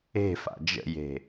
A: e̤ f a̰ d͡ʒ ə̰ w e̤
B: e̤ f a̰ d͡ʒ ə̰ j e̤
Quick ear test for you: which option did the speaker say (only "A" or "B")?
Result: B